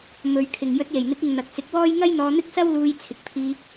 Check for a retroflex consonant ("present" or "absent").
absent